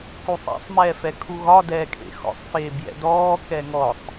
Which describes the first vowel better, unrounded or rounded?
rounded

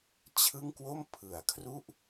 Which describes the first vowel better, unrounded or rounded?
unrounded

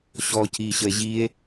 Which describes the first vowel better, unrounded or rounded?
rounded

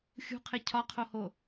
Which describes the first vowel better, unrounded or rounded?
rounded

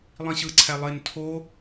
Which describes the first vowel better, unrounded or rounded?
unrounded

